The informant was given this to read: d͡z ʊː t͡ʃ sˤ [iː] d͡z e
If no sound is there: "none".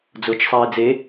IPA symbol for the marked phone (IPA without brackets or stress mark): iː